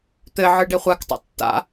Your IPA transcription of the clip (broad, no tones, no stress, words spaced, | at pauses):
t̪ɘʕɯ ɖeχʷaktˤa̰ tːa̰